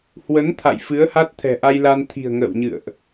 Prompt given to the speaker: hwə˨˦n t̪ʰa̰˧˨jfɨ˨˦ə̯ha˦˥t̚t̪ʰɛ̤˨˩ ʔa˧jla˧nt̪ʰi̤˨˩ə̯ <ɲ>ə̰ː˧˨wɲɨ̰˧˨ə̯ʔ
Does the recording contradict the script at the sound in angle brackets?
yes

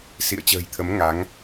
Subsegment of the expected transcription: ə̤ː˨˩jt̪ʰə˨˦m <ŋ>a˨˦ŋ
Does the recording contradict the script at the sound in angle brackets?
no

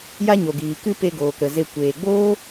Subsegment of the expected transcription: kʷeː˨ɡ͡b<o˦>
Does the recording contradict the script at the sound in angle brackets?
yes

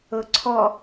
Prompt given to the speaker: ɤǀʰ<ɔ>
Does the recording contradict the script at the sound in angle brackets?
no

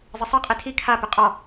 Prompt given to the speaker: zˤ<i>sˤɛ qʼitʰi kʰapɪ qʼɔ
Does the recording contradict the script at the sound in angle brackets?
yes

